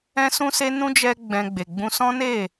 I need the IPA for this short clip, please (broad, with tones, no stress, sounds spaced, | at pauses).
ɛ̃˦ s ũ˦ s e˦ n ũ˦ d͡ʒ ɛ˦ ɡ͡b ɛ̃˧ ɡ͡b e˨ ɡ͡b ũ˧ s ɔ̃˦ n e˦˨